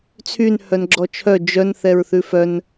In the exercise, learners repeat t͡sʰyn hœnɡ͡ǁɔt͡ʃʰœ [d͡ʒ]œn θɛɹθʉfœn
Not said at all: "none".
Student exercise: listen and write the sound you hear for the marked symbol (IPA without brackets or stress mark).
d͡ʒ